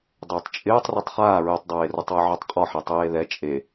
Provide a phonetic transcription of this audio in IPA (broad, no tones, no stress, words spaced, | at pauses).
dˤɪːtˤt͡ʃʼɪːtˤ ritˤχaː ɹetˤdˤeːrʊtˤwɪ ʕotˤqʼɔħɛ tˤeːðɛ t͡ʃʼe